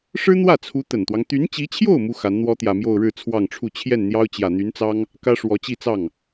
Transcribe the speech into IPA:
ʂ ɻ̩˥ n̪ w ä˥˩ t͡sʰ u˧˥ t̪ ə˨˩ n t̪ w ɑ˦ ŋ t̪ y˧˥ n t͡ɕ i˧˥ t͡ɕʰ j o˥˩ ʊ̯ m u˥ x a˧˥ n n̪ w ɔ˥ t̪ j ä˨˩ m j o˥˧ ʊ̯ ɻ ɻ̩˥˧ t͡sʰ w ɑ˥˧ ŋ ʈ͡ʂʰ u˥˧ t͡ɕʰ j ɛ˥˩ n n̪ j ɑ˥ ʊ̯ t͡ɕ j ä˨˩ n̪ y˧˥ n t͡s ɑ˥ ŋ | k ä˥ ʂ w ɔ˧˥ t͡ɕ i˥˧ t͡s ɑ˥˩ ŋ

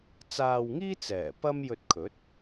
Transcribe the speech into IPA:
t͡s aː˧ w ŋ iː˥ t͡s ɛː˨˩ p ɐ˥ m j ɵ˧ t̚ kʰ ɵ˨˥ t̚

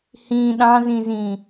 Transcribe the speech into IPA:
h ĩ ɗ ɑ̃ z ĩ z ĩ

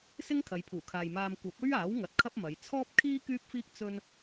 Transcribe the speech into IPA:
s ɪ˥ ŋ kʰ ɐ˨˧ j pʰ uː˨˩ kʰ aː˨ j m aː˧ m kʷ ɐ˨˥ p̚ ɵ˥ ɥ aː˨˥ w ŋ ɐ˨˥ t̚ kʰ ɐ˥ p̚ m ɐ˨˧ j t͡sʰ ɔː˥ p̚ kʰ iː˥ k yː˥ p̚ f iː˥ k̚ t͡s ɵ˥ n

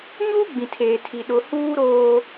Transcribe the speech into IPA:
ɲ uː˦ ɡ͡b ĩ˨ tʰ eː˨ tʰ i˨ ɗ ʊ˦ h uː˦ ɾ oː˦

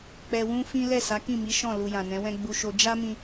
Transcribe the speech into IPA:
k͡p ɛ˧ w ũ˦ f ĩ˦ l ɛ˦˨ s a˨˦ k ĩ˦˨ m i˨˦ ʃ ɔ̃˦˨ l u˧ j ã˨ n ɛ̃˨˦ w ɛ̃˦ ɡ͡b u˧ ʃ o˧ d͡ʒ a˦ m ĩ˧

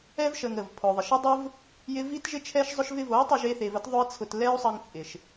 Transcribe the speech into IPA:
ɛ˦ v ʃ ə˧ ŋ ə˦˨ v pʰ ʊ˧ ðˤ ɪ˧ ʃ ə˦ dˤ ʊ˦ v | j ɪ˦ v i˦ t ʒ ɪ˦ t͡ʃʰ ɛ˦ ʃ zˤ ʊ˦ ʃ v ɪ˦ v o˨˦ i̯ tˤ ɪ˧ ʒ e˧ θ e˨ v ə˦ t ðˤ ʊ˦ i̯ t͡sʰ ʊ˧ t l ɛ˦ u̯ sˤ ə˧ ŋ t͡sʼ ɪ˨ ʃ

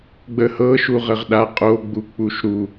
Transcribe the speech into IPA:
ɡ͡b ə h ɤ ʃ u ʁ ə ʁ ɗ a qʼ o ɡ͡b u k͡p u ʃ ɾ u

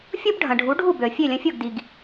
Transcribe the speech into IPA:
fʲ o˥ b ɖʱ ɐ̃˩ ɖʱ u˩˥ ɖʱ u˥˩ b ø˩ ə̯ fʲ ø˥˩ lʲ ɐ̃˧ fʲ o˥˩ ɡ d i˩ ɡ

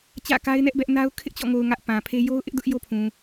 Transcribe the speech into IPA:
t͡ɕ ä̰˦˨ k a˦ ɪ̯ n ɛ˦ ʔ b ɛ˦ ʔ n a˦ ʊ̯ kʰ ɪ˦ ʔ t͡ɕ ɔ̰˦˨ ŋ o˨ ʊ̯ ŋ ä˦ ʔ p ã˨ pʰ e˦ j o˦ ʊ̯ ʔ ɪ˦ ʔ d ʊ˦ ʔ j o˦ pʰ ũ˨

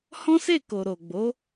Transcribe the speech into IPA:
h ɔ̃˦ s e˦˨ k o˨ ɾ o˨ ɡ͡b o˨˦

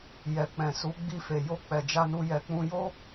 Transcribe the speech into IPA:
j ɛ˨ k͡p ɛ̃˨ s u˨˦ ɡ͡b i˧ f e˨ j o˧ k͡p ɛ˨ d͡ʒ a˧ n u˧ j ɛ˨ k͡p ũ˧ j o˦

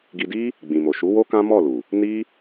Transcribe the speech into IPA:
ɡ i˧ d i˦ | ɡ͡b ĩ˨ m o˨ ʃ u˨˦ w o˦ k ã˦ m ɔ˦˨ l u˨ | n i˦

